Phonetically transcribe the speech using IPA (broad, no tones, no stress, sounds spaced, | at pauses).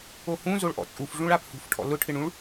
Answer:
o h ũ z o ɭ ʔ ɔ̰ t͡sʼ u f ʐ ũ ɭ a p h ṳ f ʈʰ ɔ̰ l ʊ ʈʰ ɪ ɳ ũ ɭ